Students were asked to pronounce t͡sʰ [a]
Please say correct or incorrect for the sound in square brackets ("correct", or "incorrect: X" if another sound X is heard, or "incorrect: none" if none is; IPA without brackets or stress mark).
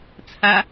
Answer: correct